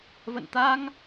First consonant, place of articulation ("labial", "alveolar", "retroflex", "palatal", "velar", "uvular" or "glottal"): labial